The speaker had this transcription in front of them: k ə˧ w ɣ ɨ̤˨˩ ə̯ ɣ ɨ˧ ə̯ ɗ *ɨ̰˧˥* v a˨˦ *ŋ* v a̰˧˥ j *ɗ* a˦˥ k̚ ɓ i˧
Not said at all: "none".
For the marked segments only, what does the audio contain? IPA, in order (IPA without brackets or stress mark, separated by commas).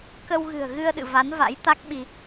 ɨ̰˧˨, n, t̪